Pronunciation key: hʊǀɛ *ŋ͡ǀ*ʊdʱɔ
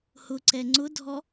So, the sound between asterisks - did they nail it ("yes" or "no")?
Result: yes